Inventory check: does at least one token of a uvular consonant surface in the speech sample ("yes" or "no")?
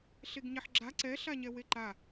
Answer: no